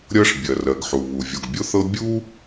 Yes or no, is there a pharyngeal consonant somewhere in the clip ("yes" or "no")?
yes